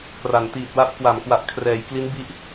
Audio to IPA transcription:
k r a˩˦ n t iː˨˩ t̚ w a˦˥ p̚ k w a˩˦ m k w a˨˩ ʔ kʰ r ɛː˩˦ j k l i˦˥ n b i˦˥ ʔ

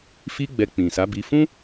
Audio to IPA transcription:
f i˦ ɡ͡b ɛ˧ k͡p ĩ˨ s a˨˦ b i˧ f ũ˦

